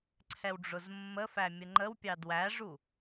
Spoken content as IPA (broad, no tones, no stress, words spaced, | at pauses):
ǀʰɛwɖ͡ʐʊzmːəfæ mʲəŋ͡ǃəwpʲɑ dwæʐu